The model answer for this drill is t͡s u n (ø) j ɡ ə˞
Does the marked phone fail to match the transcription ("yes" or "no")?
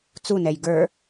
yes